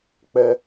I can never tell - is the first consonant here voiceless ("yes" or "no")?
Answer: yes